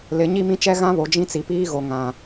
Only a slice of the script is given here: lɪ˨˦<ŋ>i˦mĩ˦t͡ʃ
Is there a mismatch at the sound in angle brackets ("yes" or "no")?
yes